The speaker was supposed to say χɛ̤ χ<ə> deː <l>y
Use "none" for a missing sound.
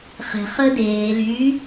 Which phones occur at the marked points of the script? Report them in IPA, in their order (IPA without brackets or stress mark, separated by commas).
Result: ə, l